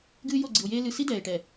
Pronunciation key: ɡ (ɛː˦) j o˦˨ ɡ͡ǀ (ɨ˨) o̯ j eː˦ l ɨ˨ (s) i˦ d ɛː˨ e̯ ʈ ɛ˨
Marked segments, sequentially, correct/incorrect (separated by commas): incorrect, correct, correct